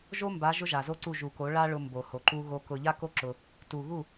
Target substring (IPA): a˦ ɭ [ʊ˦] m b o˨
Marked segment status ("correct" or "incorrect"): incorrect